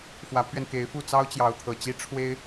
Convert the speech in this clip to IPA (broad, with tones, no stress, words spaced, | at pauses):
fwä˧˥pʰɥɛ˧nke˧˥ɪ̯fu˥˩ t͡sɑ˥ʊ̯t͡ɕjɑ˧˥ʊ̯t̪ʰɤ˨˩t͡ɕi˥ ʈ͡ʂʰwe˥ɪ̯